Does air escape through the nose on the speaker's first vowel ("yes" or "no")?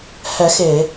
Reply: no